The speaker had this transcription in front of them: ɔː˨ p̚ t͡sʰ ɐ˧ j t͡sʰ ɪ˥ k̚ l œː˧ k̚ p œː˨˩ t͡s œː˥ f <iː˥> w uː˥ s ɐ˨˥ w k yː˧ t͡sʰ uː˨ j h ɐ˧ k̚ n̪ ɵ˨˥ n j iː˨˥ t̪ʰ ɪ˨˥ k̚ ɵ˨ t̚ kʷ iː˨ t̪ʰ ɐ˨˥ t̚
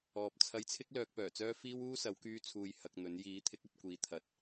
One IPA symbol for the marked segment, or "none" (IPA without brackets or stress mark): iː˥